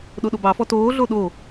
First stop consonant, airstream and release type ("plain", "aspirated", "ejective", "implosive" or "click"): implosive